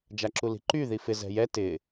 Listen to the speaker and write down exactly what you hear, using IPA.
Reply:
d͡ʒ a ǁ u l i̤ ǃ y ð i f ɪ z ɛ̤ j ɛ t ɪ

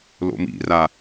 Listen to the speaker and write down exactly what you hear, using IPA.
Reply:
l o̰ m ḭ r a

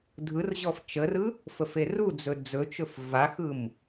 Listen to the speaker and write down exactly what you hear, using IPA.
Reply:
dʱ ɯ r ʑ ɔ f t͡ʃ ə r ɯ | f ə f e r u d͡z ɵ d͡z ɵ t͡ʃ ɵ f v a x ɯ m

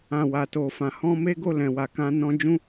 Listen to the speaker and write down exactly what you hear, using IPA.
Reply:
ã˨ w a˨ t o˨ f ã˨ h ɔ̃˧ m e˦ ɡ o˦˨ l ɛ̃˨ w a˨ k ã˧ n ɔ̃˧ d͡ʒ ũ˦

